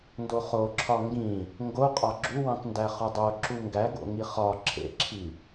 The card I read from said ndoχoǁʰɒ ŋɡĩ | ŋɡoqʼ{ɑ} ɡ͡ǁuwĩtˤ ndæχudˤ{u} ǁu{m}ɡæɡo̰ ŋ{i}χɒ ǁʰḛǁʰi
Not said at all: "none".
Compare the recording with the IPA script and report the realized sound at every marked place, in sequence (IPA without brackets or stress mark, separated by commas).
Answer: ɒ, o, ŋ, i